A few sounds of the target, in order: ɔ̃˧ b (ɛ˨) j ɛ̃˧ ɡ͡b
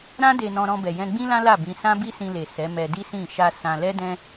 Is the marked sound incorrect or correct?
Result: correct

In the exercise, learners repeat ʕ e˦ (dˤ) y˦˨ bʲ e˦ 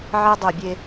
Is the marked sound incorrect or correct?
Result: correct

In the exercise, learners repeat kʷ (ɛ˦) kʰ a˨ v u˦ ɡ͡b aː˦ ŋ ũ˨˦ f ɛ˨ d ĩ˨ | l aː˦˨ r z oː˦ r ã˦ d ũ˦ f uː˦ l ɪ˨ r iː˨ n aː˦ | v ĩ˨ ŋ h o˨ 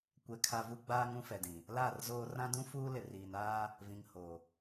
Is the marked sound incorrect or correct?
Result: incorrect: ɛ˨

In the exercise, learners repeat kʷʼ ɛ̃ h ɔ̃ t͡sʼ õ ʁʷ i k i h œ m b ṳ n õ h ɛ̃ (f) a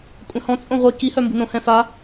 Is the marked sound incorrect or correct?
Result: correct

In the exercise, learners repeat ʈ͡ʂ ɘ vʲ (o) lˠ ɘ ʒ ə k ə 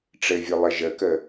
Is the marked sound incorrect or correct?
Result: correct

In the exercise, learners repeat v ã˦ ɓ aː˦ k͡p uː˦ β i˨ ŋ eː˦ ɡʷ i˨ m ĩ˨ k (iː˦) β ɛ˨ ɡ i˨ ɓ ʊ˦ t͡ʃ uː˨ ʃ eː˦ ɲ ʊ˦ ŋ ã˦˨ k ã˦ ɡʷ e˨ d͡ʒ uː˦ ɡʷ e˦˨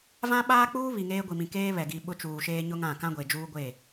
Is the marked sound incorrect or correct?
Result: incorrect: eː˦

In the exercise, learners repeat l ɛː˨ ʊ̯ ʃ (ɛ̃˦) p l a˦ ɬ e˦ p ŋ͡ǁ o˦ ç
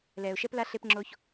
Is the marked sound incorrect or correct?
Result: incorrect: ɛ˦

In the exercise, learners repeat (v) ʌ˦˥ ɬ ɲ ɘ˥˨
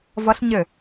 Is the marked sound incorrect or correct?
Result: correct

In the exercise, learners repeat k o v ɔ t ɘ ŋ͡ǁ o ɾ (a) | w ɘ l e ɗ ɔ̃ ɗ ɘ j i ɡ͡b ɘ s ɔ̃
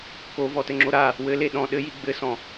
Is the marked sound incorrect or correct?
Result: correct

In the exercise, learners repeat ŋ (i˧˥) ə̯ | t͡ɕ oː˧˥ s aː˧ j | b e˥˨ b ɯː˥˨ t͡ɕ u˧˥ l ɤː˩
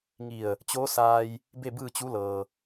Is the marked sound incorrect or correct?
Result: incorrect: i˧˩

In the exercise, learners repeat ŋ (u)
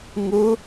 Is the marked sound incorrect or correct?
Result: incorrect: ɯ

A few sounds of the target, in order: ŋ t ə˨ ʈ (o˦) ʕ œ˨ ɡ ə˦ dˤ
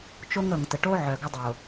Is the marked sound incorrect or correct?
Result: correct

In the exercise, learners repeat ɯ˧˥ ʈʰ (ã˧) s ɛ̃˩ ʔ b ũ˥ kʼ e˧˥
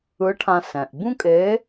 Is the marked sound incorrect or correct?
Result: correct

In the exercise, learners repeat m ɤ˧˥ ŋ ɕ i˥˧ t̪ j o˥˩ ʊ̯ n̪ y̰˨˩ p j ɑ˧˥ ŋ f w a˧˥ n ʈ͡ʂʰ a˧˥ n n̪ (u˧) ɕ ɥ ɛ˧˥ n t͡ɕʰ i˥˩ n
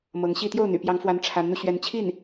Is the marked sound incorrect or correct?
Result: correct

